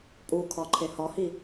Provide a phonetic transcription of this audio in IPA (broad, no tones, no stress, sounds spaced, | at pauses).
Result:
pʼ u kʰ ɒ ǃʰ e h ɒ h i